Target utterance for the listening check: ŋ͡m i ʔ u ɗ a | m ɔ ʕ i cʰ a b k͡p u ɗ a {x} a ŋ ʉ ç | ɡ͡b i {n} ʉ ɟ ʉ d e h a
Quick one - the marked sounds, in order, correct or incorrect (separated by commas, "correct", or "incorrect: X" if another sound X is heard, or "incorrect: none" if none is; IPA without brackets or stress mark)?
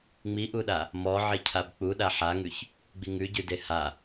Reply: incorrect: ħ, incorrect: ŋ